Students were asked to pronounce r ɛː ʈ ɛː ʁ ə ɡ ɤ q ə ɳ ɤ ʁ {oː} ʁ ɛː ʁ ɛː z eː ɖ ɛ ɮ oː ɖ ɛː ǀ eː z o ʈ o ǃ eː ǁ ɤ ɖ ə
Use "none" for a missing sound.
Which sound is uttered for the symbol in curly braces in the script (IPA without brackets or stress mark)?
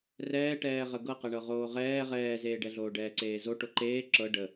oː